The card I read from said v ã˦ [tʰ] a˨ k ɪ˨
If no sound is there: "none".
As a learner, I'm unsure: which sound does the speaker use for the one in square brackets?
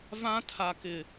tʰ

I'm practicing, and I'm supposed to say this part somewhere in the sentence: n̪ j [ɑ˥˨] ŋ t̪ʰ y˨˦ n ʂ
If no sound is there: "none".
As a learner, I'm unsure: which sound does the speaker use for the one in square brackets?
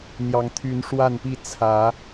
ɑ˨˩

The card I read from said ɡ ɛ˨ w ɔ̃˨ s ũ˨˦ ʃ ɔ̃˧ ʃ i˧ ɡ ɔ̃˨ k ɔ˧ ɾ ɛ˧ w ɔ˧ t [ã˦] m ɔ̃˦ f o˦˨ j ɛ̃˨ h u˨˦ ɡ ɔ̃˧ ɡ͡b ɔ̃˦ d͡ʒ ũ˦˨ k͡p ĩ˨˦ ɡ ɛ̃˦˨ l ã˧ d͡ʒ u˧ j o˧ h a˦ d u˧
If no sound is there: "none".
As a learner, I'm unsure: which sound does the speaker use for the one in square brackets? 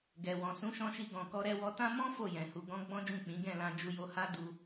ã˦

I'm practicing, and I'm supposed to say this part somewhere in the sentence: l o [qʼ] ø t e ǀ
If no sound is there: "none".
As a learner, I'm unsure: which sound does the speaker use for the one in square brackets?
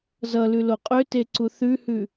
qʼ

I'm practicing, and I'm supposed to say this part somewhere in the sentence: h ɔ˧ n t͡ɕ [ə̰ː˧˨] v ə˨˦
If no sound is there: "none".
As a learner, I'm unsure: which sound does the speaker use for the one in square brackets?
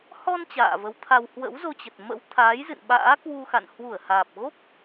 a̰ː˧˨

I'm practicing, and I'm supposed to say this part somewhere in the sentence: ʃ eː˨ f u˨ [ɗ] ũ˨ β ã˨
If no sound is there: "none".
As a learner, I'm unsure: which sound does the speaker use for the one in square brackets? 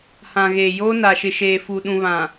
ɗ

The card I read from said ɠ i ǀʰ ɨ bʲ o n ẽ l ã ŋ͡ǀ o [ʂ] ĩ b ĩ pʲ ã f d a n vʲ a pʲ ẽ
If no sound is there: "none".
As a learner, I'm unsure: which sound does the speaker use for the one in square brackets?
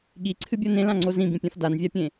z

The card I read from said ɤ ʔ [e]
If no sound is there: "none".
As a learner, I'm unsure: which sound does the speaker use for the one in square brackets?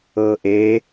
e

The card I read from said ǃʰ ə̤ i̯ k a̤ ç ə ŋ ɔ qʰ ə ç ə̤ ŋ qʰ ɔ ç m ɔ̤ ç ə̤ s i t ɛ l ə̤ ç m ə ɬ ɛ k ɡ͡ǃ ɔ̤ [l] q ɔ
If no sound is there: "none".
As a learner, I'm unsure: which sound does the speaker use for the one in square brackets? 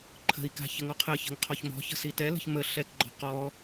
none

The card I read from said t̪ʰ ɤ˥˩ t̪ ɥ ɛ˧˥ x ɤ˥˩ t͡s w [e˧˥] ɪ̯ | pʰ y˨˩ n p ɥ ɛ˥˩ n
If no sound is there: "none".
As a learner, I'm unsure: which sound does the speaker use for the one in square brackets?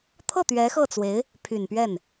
e˧˥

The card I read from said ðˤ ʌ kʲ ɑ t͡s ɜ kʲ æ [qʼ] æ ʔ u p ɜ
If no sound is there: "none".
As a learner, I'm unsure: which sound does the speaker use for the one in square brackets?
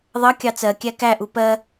k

